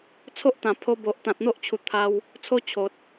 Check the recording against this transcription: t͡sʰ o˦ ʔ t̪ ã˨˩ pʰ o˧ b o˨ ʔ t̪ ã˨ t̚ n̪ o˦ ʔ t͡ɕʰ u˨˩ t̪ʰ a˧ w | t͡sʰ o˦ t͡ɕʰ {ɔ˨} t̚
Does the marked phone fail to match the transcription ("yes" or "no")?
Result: yes